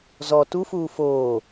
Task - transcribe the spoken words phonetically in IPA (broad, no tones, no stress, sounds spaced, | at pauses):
z ɔ t u f uː f oː